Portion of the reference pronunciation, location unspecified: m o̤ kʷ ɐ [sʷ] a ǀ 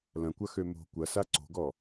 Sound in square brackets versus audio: incorrect: s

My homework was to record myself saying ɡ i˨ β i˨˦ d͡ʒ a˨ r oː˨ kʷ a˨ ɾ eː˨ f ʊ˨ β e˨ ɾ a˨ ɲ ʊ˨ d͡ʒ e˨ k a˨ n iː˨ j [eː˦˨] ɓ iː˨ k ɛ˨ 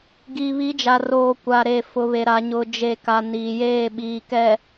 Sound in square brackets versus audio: correct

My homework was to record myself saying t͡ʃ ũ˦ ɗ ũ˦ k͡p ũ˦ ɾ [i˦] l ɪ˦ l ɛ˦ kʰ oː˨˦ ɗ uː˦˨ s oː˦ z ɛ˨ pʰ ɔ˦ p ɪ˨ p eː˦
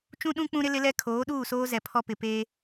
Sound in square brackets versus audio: incorrect: ɪ˦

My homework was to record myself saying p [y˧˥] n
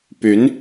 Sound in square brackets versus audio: correct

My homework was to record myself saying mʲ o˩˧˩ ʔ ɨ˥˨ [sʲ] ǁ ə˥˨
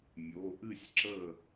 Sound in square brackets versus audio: correct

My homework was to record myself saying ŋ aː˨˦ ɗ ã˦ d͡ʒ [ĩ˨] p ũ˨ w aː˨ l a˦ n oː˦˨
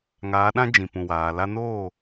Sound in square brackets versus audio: correct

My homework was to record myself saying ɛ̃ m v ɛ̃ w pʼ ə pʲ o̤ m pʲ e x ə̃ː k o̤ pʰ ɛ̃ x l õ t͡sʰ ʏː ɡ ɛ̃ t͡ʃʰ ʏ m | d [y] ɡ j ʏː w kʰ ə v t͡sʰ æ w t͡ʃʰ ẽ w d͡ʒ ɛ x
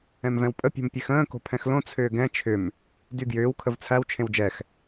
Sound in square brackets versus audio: correct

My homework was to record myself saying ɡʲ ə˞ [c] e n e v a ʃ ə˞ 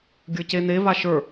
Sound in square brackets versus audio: correct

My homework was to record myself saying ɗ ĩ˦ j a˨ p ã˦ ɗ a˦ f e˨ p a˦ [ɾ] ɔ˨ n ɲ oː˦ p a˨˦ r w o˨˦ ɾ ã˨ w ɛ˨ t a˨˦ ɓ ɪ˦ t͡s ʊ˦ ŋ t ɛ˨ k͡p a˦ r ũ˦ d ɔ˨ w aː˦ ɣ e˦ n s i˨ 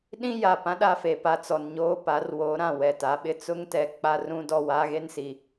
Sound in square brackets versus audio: incorrect: t͡s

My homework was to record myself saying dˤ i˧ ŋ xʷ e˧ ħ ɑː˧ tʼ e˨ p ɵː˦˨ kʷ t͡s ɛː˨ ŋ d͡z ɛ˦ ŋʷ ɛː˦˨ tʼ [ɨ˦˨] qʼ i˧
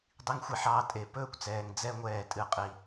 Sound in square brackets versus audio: correct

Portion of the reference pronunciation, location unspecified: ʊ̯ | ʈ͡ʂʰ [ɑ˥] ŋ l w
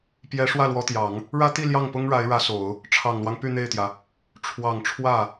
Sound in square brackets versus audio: incorrect: ɑ˨˩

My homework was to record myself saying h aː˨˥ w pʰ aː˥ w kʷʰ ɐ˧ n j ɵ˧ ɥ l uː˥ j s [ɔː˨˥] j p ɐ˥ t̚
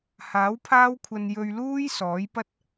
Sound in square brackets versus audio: correct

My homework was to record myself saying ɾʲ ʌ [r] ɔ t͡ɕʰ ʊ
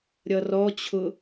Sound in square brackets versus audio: correct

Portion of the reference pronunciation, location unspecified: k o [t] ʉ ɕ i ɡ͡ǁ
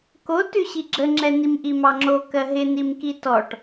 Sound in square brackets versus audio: correct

